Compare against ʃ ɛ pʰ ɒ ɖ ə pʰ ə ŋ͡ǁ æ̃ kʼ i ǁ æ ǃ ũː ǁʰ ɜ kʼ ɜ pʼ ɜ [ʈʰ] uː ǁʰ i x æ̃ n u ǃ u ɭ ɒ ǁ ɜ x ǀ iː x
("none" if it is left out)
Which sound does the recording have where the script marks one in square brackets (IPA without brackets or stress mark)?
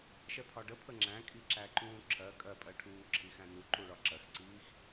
ʈʰ